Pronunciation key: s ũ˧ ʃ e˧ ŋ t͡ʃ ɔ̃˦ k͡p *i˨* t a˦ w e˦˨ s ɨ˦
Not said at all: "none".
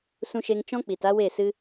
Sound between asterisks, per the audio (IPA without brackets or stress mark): i˨